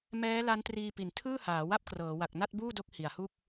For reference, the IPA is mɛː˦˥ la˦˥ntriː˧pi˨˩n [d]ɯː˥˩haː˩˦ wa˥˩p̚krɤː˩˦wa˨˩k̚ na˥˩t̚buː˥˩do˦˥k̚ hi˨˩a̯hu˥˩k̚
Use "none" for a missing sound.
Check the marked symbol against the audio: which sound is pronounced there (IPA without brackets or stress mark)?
tʰ